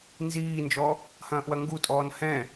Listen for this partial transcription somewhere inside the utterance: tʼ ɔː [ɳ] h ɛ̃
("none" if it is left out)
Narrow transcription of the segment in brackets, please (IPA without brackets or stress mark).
n